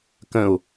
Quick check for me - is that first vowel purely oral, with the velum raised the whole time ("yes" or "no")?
no